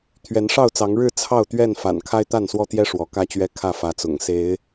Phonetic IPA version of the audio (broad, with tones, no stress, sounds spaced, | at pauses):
t̪ʰ ɥ ɛ˨˦ n ʂ ɑ˥˨ ʊ̯ t͡s ɑ˨˦ ŋ ɻ ɻ̩˥˨ t͡sʰ ɑ˥˨ ʊ̯ t̪ ɥ ɛ˥˨ n f a̰˨˩ n kʰ a˦ ɪ̯ t̪ a˥˨ n s w ɔ˦ t̪ j ɛ˦ ʂ w ɔ˨˦ k ä˥˨ t͡ɕ ɥ ɛ˦ kʰ ä˥˨ f ä˨˦ t͡s ʊ̰˨˩ ŋ s e˨˦ ɪ̯